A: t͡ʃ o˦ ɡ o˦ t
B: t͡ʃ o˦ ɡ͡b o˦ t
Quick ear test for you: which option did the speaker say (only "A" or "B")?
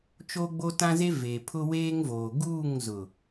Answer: B